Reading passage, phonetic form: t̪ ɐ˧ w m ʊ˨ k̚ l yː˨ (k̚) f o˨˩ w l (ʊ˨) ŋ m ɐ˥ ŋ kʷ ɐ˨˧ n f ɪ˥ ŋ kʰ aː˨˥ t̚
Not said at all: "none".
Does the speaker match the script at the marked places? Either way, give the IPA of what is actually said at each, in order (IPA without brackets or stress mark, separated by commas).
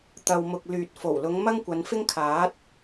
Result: t̚, ʊ˨˧